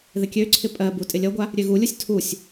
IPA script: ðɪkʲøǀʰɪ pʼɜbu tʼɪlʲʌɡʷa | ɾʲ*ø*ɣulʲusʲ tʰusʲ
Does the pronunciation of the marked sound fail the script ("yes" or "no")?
no